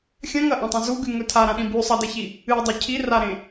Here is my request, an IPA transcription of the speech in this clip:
xʲɐ̃ŋɐʔõtˤɐ̃ zuɡʉŋɵ tʰaɾãɗĩ bʉ sˤɐdeçi | ɨdˤɵ cʰiraɾẽ

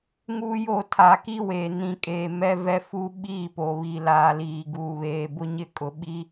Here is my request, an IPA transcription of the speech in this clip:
ŋuː˦jo˦˨ tʰa˨ ki˦we˨nĩ˨kʼeː˨ mɛ˦vɛ˦fu˦ ɓiː˦˨po˨βi˨ laː˨liː˨ ɡuː˨βeː˨bʊ˦ ɲɪ˦˨kʼʊ˨ɓi˦

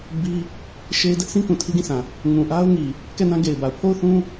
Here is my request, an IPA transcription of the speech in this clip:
bi˦ | ʃe˦ɪ̯ dɛ˦ʔsĩ˦ kũ˨tʰi˦ɡĩ˦˨sʰã˨ | ŋũ˨ ʔa˦ʊ̯ŋi˨ | kɛ˦˨nã˦ɡe˨ɪ̯ba˨ʊ̯ pʰo˦˨ʊ̯θũ˦

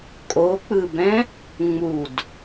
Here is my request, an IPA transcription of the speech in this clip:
kʼok͡pɯbɛ̃ | ŋ͡mud

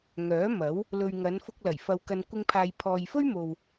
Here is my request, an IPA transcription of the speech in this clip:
ŋœː˨˥mɐ˨˥w | lɵ˨ɥ ŋɐ˨˧nfʊ˧k̚lɐ˨˩j fɐ˨wkɐ˨nkʷɪ˧ŋpʰaː˨j pʰɔː˨jfɵ˥ɥmo˨w

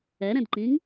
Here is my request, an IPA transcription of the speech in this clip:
ɛɾɛ̃dǃĩŋ

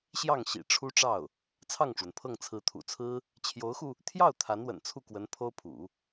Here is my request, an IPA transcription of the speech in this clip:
ɕjɑ˥˩ŋ ɕḭ˨˩ʈ͡ʂʰu˥ʈ͡ʂɑ˥˩ʊ̯ | t͡sʰɑ˥˩ŋʈ͡ʂwə˩npʰɤ˥˩ŋ t͡sʰɹ̩˧˥t̪ʰṵ˨˩t͡sʰɹ̩˥ | t͡ɕʰjo˧˥ʊ̯xu˧ | t̪ʰjɑ˥˩ʊ̯ t̪ʰa˧˥nwə̰˨˩n t͡sʰu˥˩kwə˧˥n pʰo˥ʊ̯pʰṵ˨˩˦

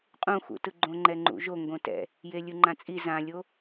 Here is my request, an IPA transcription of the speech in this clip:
qʼũxṵtɯ ɡ͡ǃõŋ͡ǃɛŋ͡ǃṵʒo ŋɡõtɛ̰ | jelʲɯŋ͡ǃãt͡sʼi zãlʲo

